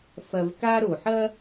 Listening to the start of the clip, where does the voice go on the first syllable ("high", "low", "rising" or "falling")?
low